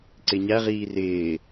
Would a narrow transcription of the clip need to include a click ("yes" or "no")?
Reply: yes